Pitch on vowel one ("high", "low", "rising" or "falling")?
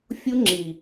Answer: high